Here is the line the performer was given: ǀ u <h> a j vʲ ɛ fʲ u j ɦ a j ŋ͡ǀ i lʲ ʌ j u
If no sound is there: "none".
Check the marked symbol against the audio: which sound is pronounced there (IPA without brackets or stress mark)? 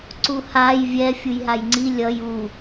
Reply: h